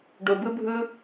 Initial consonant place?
retroflex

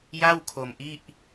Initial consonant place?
palatal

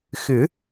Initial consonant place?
velar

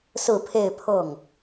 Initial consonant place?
alveolar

